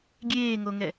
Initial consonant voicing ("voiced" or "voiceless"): voiced